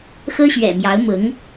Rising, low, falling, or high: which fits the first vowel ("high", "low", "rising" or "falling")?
high